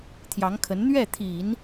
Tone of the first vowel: rising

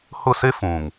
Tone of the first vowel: falling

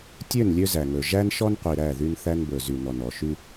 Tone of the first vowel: falling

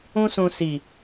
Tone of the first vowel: high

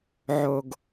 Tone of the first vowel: low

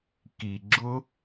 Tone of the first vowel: low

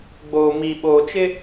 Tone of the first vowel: low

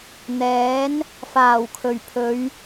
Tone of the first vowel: rising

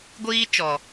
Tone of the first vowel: high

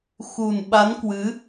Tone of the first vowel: low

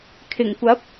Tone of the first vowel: low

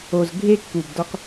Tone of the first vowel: low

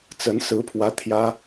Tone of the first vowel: rising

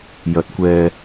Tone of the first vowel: rising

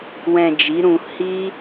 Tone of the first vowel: low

